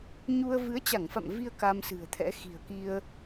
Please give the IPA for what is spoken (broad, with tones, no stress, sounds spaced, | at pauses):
ɲ u˧ ə̯ v ɨ˨˦ ə̯ t͡ɕ a˧˩ ŋ f a̰˧˨ m v i˧ ə̯ k a˧ m s ɨ̤˨˩ ə̯ t̪ʰ ɛ̰˧˥ x i̤˨˩ ə̯ k i˧ ə̯